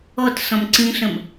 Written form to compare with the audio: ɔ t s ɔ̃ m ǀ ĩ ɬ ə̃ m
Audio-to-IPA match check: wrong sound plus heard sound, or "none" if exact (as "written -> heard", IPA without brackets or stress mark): none